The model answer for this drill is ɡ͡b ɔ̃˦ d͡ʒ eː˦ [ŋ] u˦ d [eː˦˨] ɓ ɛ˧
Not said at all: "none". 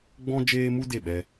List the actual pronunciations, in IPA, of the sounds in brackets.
m, e˦˨

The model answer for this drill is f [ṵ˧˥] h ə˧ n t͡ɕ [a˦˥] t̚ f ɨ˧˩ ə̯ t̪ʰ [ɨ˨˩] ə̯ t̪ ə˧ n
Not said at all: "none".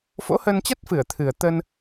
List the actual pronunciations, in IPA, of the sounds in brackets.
o̰˧˥, a˦˥, ɨ˨˩

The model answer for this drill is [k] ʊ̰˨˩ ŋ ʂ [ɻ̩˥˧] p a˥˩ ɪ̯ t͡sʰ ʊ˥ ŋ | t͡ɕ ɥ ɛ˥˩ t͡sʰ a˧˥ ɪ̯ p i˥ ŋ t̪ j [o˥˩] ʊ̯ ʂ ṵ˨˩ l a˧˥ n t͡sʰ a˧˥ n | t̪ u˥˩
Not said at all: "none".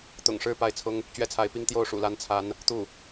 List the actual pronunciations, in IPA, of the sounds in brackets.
t̪, ɻ̩˥˧, o˥˩

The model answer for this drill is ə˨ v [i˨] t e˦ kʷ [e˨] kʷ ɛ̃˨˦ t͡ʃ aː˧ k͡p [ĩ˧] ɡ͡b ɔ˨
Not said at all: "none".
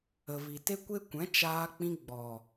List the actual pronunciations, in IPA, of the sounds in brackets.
i˨, e˦, ĩ˧

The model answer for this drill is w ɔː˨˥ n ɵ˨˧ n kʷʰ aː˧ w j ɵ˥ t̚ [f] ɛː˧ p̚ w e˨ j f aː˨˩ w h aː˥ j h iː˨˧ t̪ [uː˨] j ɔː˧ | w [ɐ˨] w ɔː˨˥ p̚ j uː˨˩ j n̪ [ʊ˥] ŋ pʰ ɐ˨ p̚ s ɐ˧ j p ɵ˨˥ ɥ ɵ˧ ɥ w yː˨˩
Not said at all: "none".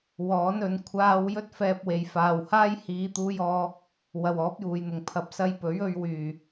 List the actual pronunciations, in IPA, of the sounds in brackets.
f, uː˧, ɐ˨, ʊ˨˩

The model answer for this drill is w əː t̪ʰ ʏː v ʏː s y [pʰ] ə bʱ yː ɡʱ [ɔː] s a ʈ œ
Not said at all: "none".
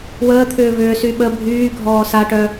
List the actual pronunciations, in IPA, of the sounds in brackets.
ɓ, ɔː

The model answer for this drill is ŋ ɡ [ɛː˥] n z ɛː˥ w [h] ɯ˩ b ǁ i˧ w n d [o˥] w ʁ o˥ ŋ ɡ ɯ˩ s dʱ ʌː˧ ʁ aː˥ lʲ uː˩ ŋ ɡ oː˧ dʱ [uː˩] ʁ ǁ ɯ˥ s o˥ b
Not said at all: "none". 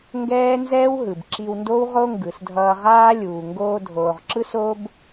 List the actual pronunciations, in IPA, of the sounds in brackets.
ɛː˥, ɦ, o˥, oː˩

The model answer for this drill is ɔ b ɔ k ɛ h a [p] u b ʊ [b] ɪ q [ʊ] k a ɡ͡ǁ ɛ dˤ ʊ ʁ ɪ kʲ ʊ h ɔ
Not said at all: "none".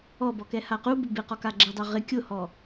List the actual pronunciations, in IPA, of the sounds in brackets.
q, b, ɔ

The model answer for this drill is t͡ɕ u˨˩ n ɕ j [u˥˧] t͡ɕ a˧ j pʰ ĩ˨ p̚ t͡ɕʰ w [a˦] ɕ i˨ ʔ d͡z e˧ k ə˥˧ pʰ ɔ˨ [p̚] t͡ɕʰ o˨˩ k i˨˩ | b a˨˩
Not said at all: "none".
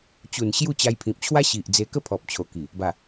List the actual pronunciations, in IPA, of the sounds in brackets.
u˥˧, a˦, p̚

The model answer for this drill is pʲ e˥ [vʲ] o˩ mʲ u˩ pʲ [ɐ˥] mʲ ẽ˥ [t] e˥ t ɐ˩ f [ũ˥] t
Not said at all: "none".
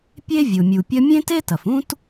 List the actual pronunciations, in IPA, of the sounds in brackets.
vʲ, ɐ˥, t, ũ˥

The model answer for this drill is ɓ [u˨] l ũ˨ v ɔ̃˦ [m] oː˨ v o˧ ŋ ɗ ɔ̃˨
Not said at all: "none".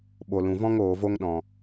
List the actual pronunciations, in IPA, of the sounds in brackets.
o˨, ŋ

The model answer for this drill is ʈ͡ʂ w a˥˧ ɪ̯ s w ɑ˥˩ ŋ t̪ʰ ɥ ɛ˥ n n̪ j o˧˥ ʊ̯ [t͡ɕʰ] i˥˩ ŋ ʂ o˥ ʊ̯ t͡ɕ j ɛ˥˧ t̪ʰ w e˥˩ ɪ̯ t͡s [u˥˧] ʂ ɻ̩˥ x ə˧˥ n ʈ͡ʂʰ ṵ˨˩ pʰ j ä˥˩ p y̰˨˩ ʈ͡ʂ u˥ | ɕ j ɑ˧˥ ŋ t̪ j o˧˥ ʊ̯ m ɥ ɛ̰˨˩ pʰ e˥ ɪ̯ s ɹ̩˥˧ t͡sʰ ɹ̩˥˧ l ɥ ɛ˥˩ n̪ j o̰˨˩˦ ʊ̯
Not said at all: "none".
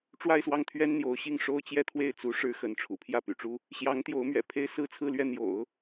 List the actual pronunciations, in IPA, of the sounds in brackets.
ɕ, u˧˥

